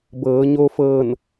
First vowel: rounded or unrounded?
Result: unrounded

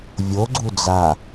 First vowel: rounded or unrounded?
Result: rounded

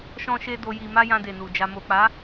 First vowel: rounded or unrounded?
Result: rounded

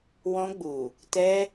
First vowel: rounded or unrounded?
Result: rounded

